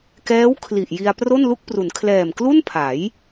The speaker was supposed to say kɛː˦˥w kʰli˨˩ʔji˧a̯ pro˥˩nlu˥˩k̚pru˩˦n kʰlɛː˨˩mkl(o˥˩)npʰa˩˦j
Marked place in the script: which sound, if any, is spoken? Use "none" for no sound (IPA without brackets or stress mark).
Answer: u˥˩